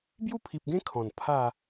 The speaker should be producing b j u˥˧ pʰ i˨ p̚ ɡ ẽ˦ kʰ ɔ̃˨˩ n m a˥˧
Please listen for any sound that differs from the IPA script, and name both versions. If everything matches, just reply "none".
m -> pʰ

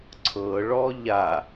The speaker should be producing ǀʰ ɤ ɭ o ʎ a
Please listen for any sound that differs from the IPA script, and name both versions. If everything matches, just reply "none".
o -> ɔ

